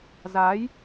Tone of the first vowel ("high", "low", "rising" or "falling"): rising